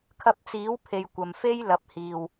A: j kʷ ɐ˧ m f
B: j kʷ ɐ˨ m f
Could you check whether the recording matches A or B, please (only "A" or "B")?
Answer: B